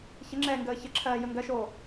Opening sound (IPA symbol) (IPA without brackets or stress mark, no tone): ç